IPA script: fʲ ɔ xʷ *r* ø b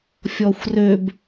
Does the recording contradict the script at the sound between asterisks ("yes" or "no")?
no